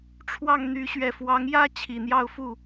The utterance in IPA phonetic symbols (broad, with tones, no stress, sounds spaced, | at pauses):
ʈ͡ʂʰ w ɑ˥˩ ŋ n̪ y˧˥ ɕ ɥ ɛ˨˩ f w ɑ˧˥ ŋ j ä˥ t͡ɕʰ i˨˩ n̪ j ɑ˥˧ ʊ̯ f u˥˩